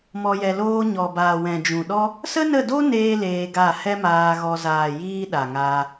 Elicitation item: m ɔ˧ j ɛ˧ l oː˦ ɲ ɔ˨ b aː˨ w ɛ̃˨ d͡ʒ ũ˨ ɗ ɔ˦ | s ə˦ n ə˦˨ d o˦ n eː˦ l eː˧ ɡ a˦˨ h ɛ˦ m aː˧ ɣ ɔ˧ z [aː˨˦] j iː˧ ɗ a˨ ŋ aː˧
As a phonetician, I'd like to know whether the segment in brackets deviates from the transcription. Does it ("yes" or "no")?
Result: yes